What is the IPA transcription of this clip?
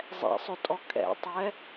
zˤɛ̰sˤɵtʼɔ kʼɛ̰tˤɛ

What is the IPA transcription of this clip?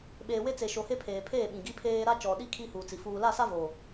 ɓeː˨we˦t͡se˨ʃo˨ he˦pʰeː˨pʰeː˦˨ ɓĩ˨ɡi˦pʰeː˦ ɾa˦t͡ʃɔ˨ɗi˦ kʰi˦huː˨t͡si˨ fuː˨la˦˨sa˦vo˨

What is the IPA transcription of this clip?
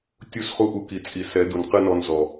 tʲu˦˨sχu˦ ʔu˧ ki˨t͡sʼi˨ sɛ˨˦du˨nqɨ˦nɔ˧n zɔ˨

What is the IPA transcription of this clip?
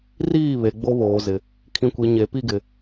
riː˦˨ βe˨ɡ͡bo˦βoː˨zɪ˨ | kʰĩ˨kʷi˨ ɲe˨pi˦ɡɪ˨

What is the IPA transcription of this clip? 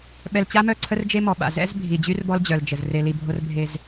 ɓɛ˨lt͡ɕa˦mœ˦˨ǀʰə˦r d͡ʒe˦mɔ˨ ɓa̰˨ zɛ̰˦z bʱi˨d͡ʑy˦rbɔ˦l d͡ʑœ˨ld͡ʒə˨z re˨li˨bʱo˦r bʱe˦z

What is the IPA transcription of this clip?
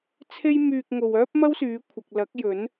t͡sʰe˥j myː˧k̚ ŋo˨w œː˥p̚ mɐ˥wsyː˨˧kʷʰɐ˨k̚ lɐ˨˥k̚jɵ˨˥n

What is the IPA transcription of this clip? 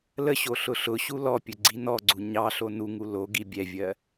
ləɕo ɬʊɬʊɕu lɔpʲɵ ɡ͡ǀinɔɡ͡ǀu ɲɑɬo nuŋu loɡi bʲɛvʲɜ

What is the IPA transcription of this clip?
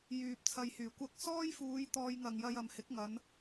jyː˧p̚t͡sʰɐ˧jhyː˨˩ kʷɐ˧k̚sɔː˥jfuː˨˧j t̪ɔː˧jŋɐ˨ŋjɐ˧j ɐ˨mhɪ˨˥k̚ ŋɐ˨˧n

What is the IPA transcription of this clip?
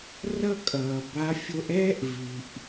rʌ˥kʼʌː˩ ba˧˥ fʲo˧ʔɛː˥ʔ vi˩ʔ

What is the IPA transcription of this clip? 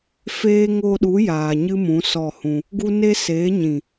feː˦ ŋo˧ɗu˨˦ jaː˨ɲɨ˦mũ˨˦ sɔ˦˨hũ˧ | ɡu˦ ne˦seː˨˦ ɲĩ˨

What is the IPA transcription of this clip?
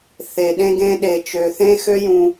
θe˨ɗẽ˧ɡẽ˧ ɗe˨t͡ʃø˨θẽ˧ xø˦jũ˧

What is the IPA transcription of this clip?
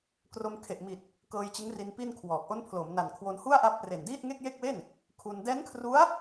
kro˧mkʰe˨˩ʔmi˨˩t̚ | kɤː˧jt͡ɕɯ˦˥ŋri˧n pi˥˩nkʰwɔː˨˩k̚ ʔo˦˥npʰlo˩˦mna˨˩nkʰwo˧n hu˥˩a̯ʔa˦˥p̚re˨˩n diː˥˩t̚ŋe˥˩k̚je˥˩k̚we˥˩n | kʰu˧n dɛː˦˥nkʰru˦˥a̯

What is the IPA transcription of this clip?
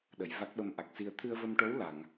ɗə˨˩˨j va˦˥k̚ɓə˧mʔa˨˩k̚si˧ə̯ t̪ʰɨ˧ə̯və˧mʈo˧˥w la˨˩˨ŋ

